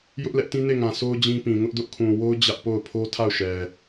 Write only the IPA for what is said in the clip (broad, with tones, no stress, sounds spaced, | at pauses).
j ʊ˦ ʔ l ɛ˦ ʔ t ĩ˦ n e˦˨ ŋ ã˨ s o˦ ʊ̯ d͡ʑ ĩ˦ p ĩ˨ ŋ ʊ˦ ʔ d ʊ˦ ʔ kʰ ũ˨ w o˦ ʊ̯ d͡ʑ ä˦ ʔ p o˦˨ ʊ̯ pʰ o˦ tʰ a˦˨ ʊ̯ ʃ ɛ˨